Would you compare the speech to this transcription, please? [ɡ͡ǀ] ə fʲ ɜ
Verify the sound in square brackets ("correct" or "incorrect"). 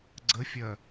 correct